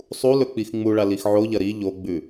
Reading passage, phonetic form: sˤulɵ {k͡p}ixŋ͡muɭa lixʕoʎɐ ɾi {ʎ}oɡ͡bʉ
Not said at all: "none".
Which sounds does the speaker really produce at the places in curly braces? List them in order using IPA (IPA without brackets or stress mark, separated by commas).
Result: k͡p, ʎ